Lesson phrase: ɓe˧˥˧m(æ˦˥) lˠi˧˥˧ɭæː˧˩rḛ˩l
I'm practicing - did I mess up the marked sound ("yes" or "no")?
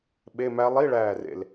no